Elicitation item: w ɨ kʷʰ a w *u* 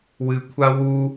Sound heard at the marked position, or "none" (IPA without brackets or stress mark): u